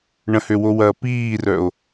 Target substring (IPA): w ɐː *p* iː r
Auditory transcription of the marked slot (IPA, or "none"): p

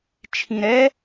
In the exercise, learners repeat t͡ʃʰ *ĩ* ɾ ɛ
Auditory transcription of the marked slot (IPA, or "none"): ĩ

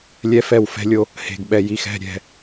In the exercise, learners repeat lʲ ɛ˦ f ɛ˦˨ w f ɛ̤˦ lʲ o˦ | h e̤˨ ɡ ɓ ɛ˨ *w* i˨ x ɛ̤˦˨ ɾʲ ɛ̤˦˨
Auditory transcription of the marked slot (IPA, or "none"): j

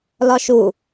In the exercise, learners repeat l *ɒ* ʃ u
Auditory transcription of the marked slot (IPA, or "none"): ɒ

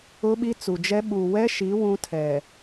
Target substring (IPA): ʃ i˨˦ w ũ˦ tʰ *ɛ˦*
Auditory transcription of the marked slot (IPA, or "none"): ɛ˨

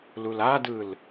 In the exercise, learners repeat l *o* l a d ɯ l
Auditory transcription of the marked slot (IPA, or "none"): u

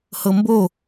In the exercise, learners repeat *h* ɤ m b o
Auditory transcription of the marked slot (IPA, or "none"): h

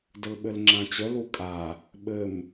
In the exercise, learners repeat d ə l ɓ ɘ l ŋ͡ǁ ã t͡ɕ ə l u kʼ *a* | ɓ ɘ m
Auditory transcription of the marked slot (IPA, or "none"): a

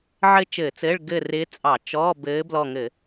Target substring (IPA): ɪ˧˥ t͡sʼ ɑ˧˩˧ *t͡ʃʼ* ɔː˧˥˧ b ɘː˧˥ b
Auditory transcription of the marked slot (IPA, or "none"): t͡ʃ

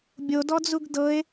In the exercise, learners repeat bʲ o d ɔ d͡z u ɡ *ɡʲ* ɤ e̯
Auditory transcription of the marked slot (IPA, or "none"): d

